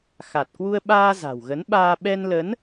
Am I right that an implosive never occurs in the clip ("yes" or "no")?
no